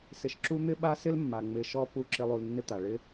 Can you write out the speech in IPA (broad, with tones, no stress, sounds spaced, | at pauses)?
s ɪ˧ ʃ ǁ u˦ n̪ ɪ˦ ɓ a˦ s ɪ˦ l mː a˨ ŋ͡m ɪ˧ ʃ ɔ˦ p u˦˨ ǁ ɪ˦ lˠ u˧ l nː ɪ˦ t̪ a˨ ɭ ɪ˧